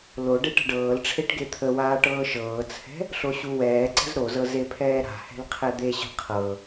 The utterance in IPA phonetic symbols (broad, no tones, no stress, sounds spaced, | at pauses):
l o ɖ e ʈ ə̤ ɖ ɤː l ʈ͡ʂʰ e ʈ ɡ e t̪ʰ ə w aː ʈ ɤː ʃ ɤː t͡sʰ ɛ̤ | ɬ o ɕ u w ɛː ǀ ə̤ z ɾ o z ɤ z e pʰ ɛː ɾ a̤ h ɛ̤ l qʰ ɛ d̪ e ɕ ə̤ qʰ ɤ